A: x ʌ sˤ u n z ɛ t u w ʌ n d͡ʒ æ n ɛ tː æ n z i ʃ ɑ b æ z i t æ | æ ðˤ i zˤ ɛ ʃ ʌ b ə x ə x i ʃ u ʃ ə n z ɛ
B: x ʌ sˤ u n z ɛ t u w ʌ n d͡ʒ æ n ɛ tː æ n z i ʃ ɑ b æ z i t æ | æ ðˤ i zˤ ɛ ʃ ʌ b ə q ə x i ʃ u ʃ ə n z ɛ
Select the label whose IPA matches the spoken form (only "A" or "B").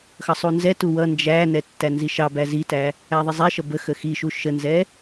A